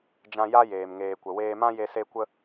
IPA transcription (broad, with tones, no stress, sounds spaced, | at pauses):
d͡ʒ ã˧ j a˦ j eː˨ m ŋ eː˨ kʷ ə˨ w eː˧ m ã˦ j e˧ s e˧ kʷ ə˧